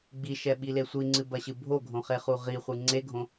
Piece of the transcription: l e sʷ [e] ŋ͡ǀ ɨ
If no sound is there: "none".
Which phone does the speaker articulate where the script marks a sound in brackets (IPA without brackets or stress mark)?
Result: i